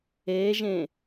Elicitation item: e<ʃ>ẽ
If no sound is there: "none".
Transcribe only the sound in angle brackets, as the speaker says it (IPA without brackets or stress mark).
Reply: ʒ